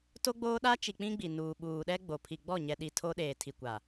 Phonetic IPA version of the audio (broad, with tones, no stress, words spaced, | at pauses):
to˦ɡ͡boː˦ɗa˦ t͡ʃi˨ k͡pĩ˦ɡ͡bi˨ nuː˨ ɓuː˨ɗɛ˦ ɡ͡bo˨ pʰi˨ɡ͡bɔ˦˨ɲɛ˨ɗi˨ tʰo˦ɗeː˨ tʰi˨kʷa˨